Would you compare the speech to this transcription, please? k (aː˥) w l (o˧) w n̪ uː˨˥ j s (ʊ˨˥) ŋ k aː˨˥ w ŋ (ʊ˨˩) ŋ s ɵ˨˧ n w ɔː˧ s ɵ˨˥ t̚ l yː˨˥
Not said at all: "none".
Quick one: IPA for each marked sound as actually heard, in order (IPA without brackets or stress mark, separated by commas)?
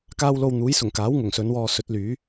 aː˥, o˧, ʊ˨˩, ʊ˨˩